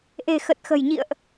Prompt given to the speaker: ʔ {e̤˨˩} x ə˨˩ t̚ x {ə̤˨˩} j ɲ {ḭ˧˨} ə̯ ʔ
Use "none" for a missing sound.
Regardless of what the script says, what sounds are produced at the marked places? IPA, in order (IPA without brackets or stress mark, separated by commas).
e̤˨˩, ə̤˨˩, ḭ˧˨